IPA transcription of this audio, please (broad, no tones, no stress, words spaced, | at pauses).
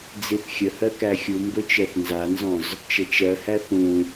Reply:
d͡ziθxʲəhɜ kæxʲumbɵ t͡ʃɜθnzanzɔ̃z | t͡ʃət͡ʃɜhæ θũ